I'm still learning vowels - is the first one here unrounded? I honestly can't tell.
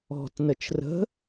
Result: no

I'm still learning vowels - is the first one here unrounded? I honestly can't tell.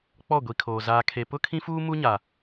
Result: no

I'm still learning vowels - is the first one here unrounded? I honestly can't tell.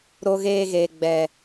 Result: no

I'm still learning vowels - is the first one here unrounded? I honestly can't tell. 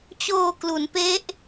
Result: no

